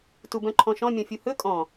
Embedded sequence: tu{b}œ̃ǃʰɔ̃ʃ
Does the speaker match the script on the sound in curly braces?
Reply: yes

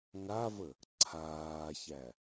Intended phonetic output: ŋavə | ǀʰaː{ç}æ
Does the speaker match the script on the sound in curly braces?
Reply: yes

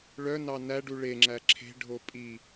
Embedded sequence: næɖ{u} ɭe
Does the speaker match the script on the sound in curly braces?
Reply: yes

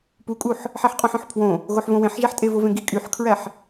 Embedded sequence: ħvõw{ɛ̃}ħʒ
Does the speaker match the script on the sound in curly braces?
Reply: no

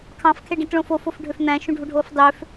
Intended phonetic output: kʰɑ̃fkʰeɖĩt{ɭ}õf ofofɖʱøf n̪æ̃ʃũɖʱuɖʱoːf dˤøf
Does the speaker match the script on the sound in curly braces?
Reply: yes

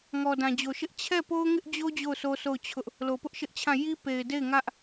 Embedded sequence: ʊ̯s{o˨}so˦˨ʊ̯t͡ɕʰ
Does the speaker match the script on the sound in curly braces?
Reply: no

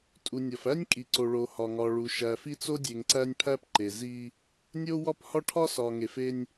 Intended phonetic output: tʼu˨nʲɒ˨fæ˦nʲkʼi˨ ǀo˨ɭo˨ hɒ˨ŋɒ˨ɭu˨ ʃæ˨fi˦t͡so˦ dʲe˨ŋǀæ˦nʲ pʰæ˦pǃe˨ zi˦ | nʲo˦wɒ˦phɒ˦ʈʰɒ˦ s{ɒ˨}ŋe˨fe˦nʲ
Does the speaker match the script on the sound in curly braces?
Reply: yes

